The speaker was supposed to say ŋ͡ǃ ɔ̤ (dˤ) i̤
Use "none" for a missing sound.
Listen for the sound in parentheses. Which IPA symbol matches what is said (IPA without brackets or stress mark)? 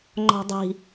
dˤ